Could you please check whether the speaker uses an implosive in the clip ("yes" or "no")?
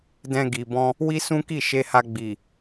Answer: no